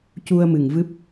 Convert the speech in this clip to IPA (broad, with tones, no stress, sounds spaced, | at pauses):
c u˧ ə̯ m ɨ˨˩ ŋ v ɨ˦˥ p̚